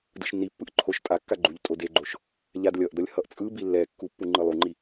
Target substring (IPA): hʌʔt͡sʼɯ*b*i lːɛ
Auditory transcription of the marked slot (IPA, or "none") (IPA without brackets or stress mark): b